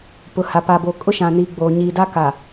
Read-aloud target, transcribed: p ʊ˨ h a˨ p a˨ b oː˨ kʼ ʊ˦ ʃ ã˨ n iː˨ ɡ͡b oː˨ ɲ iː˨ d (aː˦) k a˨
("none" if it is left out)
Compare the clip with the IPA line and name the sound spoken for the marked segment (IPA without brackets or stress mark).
a˦